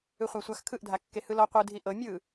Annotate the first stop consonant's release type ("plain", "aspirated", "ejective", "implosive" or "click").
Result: aspirated